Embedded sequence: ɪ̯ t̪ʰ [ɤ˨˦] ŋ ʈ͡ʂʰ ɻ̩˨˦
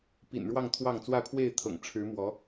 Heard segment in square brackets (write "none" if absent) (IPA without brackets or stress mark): ɤ̰˨˩